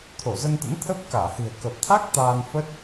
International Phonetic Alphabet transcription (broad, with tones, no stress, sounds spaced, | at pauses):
t̪ʰ o˧˩ z ə˧ n t̪ ə̰˧˥ n t̪ʰ ə˦˥ p̚ k aː˧˩ h ɨ̤˨˩ ə̯ k ə˨˩ p̚ t̪ʰ a˦˥ k̚ t̪ aː˧ n f ə˦˥ t̚